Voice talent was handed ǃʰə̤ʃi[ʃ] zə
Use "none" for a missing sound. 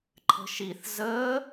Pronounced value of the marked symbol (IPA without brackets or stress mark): θ